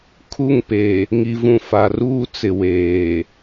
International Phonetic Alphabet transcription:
kʰu˦˨ŋpe˨ | ŋi˨vũ˨fa˨ruː˦ t͡sɪ˨ weː˨

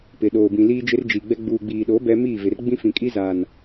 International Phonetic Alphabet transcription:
pɪ˨ɗoː˨bĩ˨ liː˦d͡ʒɪ˦rd͡ʒi˨ɡ͡bɛ˦ ɡ͡buː˨ɡ͡biː˨ɗoː˨˦ bɛ˦ miː˦˨vɪ˨r ɡ͡bĩ˦fĩ˨kʼi˦zaː˨n

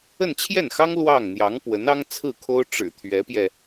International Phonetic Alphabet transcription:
ə˥˧nt͡ɕʰjɛ˥˩nxɑ˥ŋ lwɑ˥˩ŋ n̪jɑ˧˥ŋpwə˧˥nɑ˥ŋ t͡sʰɹ̩˥˩kʰo˥ʊ̯ ʈ͡ʂɻ̩˨˩t̪ʰɥɛ˧˥pjɛ˧

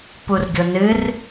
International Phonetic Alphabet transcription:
purɡʲo nɨr

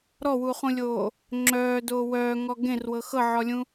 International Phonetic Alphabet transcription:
ɾɔwuːχũlʲoː | ŋ͡ǁœːdoː wœːŋɔ ɡẽrwɤ xɤʕɔlʲũ

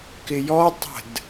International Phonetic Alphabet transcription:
kɪjɔtˤə̤d

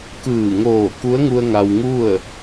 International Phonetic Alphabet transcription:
kɯː˧˩ ŋoː˧˩ku˧˥ə̯ŋu˧ə̯ ŋa˧wŋu˥˨ə̯

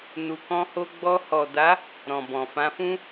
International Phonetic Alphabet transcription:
nu˨kɔ̃˧ho˧ ɡ͡bɔ˧hɔ˨da˨˦ | ɾɔ̃˨bɔ̃˨fã˧fũ˦

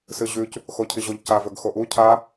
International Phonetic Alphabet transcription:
sɨʑʉc | xocʰiʑoʎcav ɵɡxoʔu cʰa

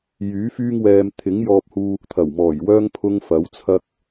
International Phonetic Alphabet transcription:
jyː˨˥fyː˥ŋwɛː˧m t̪ʰɪ˨˥ŋjɔː˧p̚huː˧ | t̪ʰɐ˨˩wmɔː˨˩jwœː˥ŋ pʰʊ˥ŋfɐ˨˥wt͡sʰɐ˥k̚

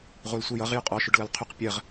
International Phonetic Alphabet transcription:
ʁʷɜlsʷɘjʌʁ jʏqʼɔʃʏɖ lʌlqʰʏq pʲɜʁ

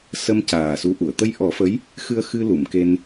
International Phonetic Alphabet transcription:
sə˧m caː˨˩su˧˥ʔu˨˩˨ə̯ t̪ə˧jʔɔ˨˩˦fə˧˥j | xɨ˧ə̯xɨ˧ lu˨˩˨mke˧n

